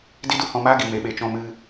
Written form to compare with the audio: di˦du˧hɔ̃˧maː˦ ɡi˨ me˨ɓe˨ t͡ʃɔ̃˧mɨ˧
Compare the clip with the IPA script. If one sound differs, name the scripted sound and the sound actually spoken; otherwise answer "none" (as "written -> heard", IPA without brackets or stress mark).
none